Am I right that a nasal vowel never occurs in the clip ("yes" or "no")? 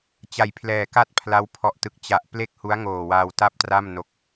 yes